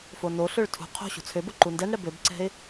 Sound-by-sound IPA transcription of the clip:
fonoɬøɭ tʰṳ qʰo̤ ɕṳt͡sʰøbo ǃundɛnɽɛ bøbǀɛ̤ɪ̯

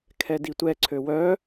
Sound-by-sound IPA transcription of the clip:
kʰɛditʷɛǀʰø wœ

